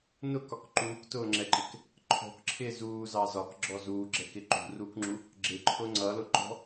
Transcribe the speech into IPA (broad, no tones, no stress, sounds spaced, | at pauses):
n ʊ k ɒ k ǃ uː k t ʊː ŋ͡ǁ ɛ ǃ ɪ k | ǃʰ ɔ̤ k ǁʰ ɪː z uː z ɑ z ɒ k ɡ͡ǁ ɔ z uː ɡ͡ǁ ɛ k ɪ ǃ ṳ r uː k ŋ͡ǁ u | ɡ͡ǁ ɪ ǃʰ ʊ ŋ͡ǀ ʌ l ʊ ǃ ɔ̤